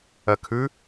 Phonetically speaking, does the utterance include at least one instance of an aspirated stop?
yes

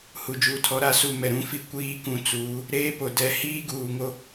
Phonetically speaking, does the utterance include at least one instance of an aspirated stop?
yes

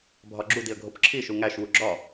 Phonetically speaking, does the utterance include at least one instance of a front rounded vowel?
no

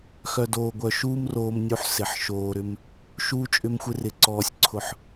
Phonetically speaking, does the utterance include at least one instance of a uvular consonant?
no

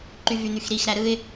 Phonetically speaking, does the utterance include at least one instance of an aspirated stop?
no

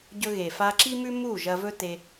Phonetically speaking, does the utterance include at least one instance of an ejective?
no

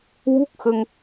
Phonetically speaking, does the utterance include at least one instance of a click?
no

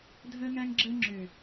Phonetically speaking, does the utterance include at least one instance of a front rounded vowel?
yes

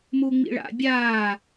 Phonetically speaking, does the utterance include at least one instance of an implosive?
no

